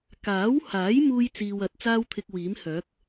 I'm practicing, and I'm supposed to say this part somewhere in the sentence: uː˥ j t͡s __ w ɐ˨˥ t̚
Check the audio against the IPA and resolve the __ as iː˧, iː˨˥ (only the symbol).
iː˧